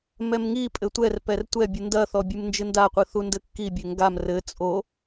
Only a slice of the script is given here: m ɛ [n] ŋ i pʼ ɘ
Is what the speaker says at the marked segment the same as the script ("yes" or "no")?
no